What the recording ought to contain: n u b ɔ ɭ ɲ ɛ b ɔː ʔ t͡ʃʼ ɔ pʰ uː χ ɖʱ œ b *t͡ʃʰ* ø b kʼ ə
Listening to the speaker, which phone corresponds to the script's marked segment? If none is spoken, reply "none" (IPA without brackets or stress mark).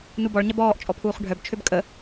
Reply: t͡ʃʰ